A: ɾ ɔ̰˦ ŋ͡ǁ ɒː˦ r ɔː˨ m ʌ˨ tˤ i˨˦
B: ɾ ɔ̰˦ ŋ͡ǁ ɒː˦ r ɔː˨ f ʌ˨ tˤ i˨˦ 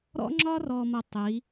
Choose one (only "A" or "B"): A